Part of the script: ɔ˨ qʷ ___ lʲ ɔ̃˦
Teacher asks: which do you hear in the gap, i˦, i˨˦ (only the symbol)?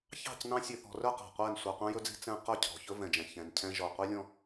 i˦